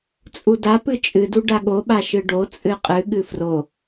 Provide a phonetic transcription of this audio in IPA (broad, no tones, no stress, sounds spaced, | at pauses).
t͡sʼ u d a p ɨ t͡ʃʼ ɨ d u ɖ a ɠ o ɓ a ʃ ɨ ɖ o t͡sʼ ɨ qʼ ɨ ɠ ɨ f r o